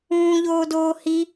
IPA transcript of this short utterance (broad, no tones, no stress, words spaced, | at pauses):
ũːʎoːdoː hi